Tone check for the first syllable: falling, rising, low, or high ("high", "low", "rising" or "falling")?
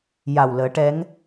low